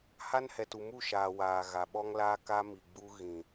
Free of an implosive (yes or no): no